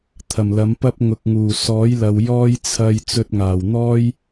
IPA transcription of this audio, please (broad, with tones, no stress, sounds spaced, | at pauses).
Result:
t̪ʰ ɐ˨˩ m l ɐ˨˥ m p ɐ˥ p̚ ŋ ʊ˨ k̚ ŋ uː˨˩ s ɔː˨˥ j l ɐ˨ w j ɔː˥ j t͡sʰ ɐ˧ j t͡s ɵ˧ t̚ ŋ aː˨˩ w n̪ ɔː˥ j